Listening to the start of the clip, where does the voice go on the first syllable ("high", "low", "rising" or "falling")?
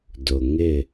low